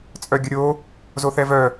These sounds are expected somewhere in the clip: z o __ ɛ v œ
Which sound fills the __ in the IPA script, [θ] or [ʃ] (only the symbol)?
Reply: θ